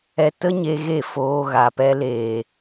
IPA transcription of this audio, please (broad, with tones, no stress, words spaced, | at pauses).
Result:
ɛ˧ tə˦ɲe˧ ɣe˦˨foː˧ɣa˨pɛ˧ leː˨